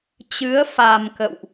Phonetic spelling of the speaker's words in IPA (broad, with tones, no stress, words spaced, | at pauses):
t͡ɕɨ˨˦ə̯fa˨˩m kə̰˧˨wʔ